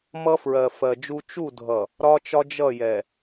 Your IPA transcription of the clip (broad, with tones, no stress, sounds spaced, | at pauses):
m ʌ˦ f ɹ ɜ˨ f ɜ˨ d͡ʒ u˦ t͡ʃ u˦˨ dʱ ʌ˨ | ɾ ɒ˦ t͡ʃ ɒ˦ d͡ʒ ʌ˦˨ j ɛ˨